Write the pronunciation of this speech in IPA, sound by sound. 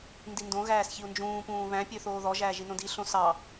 n d i n d õ ɣ æː s ç i u̯ n d͡ʒ ũː p ũː β æ̃ pʲ ø θ oː ð ɔ ʒ æː ʒ i n õ d i ɬ õ s ɑ

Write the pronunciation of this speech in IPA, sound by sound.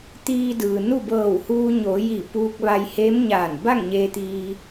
t̪ iː˧ d ɯː˩ n u˥˨ b ɤː˧˩ w h uː˧ ɲ o˩˧ j i˧˩ p uː˧ k̚ ʋ a˧ j h e˧˥ m ɲ aː˧˩ n b a˥˨ ŋ ɲ e˧ t̪ iː˧

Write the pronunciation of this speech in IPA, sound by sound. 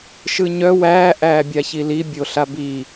ʃ ɯ ɲ œ w æː ʔ æː bʲ a ç i l i bʲ o ɬ a b i

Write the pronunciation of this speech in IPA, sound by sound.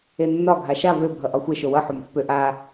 e nː ɒ ɡʱ a ʃ a v ø bʱ ʌ ʔ ɒ xʷ e ʃ o w ʌ ħ o m pː ø ʔ a

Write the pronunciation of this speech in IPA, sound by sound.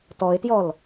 t ɔ ɪ̯ t j ɔ l

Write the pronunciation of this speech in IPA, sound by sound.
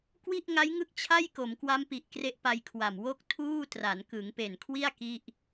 k w i˥˩ ʔ ŋ a˦˥ j ŋ ɯ˥˩ k̚ t͡ɕʰ a˥˩ j k o˩˦ m k w a˦˥ m p i˨˩ ʔ k r e˦˥ ʔ p a˧ j kʰ w a˨˩ m w o˥˩ k̚ tʰ uː˥˩ t r a˩˦ n k ɯ˩˦ ŋ p e˨˩ n kʰ w i˥˩ a̯ k i˥˩ ʔ

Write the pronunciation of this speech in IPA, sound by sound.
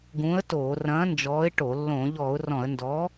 ɡ ũː˨˥ ə̯ t oː˧˩˧ r ɐ̃ː˨˥ n d͡ʒ ɔː˨˥ ɪ̯ ʈ o˧˩˧ lː õː˧˩˧ ʎ ɔː˧˩˧ ʊ̯ r ɔ̃˧˩˧ ə̯ n d ɔ˨˥

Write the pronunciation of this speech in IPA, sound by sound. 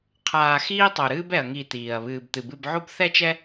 qʰ aː˨ x iː˦ tˤ o˨ ɾ ɨː˦ b ɛ˨ ɐ̯ ŋ i˧ t̪ iː˨ ɐ̯ β ɨː˨ b t̪ ɨ˨ b ɨ˧ b ʕ o˦ b θ ɛ˦ t͡ʃ ɛ˦

